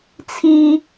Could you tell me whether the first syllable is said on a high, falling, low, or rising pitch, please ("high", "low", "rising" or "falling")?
high